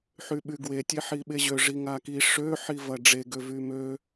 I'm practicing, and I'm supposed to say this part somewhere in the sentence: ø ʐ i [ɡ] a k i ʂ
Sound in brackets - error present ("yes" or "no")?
yes